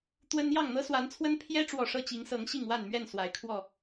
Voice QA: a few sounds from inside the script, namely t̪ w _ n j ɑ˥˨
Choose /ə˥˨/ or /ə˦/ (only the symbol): ə˦